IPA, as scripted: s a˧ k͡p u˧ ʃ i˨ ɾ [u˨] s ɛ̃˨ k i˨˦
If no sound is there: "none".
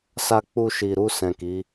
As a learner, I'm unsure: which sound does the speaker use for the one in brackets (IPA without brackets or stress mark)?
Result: u˧